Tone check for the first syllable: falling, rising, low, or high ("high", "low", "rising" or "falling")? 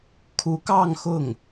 rising